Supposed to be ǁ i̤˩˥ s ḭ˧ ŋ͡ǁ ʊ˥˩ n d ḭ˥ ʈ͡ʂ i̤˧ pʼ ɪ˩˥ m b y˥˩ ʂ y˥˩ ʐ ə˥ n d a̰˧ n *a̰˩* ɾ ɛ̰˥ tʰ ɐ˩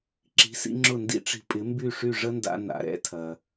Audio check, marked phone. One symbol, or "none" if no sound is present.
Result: a̰˩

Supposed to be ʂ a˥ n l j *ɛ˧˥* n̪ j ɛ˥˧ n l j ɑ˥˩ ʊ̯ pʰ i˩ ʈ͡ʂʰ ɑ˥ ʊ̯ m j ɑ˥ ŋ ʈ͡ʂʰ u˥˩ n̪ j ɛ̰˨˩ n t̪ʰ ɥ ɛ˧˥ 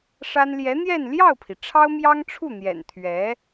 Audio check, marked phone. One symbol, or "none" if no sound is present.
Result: ɛ˧˥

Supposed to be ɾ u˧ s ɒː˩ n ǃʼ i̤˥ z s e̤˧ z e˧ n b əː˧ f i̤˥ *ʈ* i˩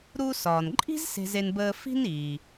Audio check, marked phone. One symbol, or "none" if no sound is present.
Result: n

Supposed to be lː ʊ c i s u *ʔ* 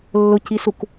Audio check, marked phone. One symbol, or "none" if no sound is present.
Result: k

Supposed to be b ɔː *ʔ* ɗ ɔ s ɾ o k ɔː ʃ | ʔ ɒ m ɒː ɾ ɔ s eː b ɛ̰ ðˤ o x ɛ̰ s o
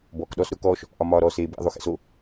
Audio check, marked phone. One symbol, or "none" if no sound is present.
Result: k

